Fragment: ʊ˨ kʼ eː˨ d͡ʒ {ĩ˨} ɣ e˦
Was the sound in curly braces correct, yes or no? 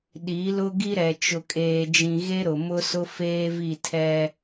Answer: yes